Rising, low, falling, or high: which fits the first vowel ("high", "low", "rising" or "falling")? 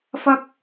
high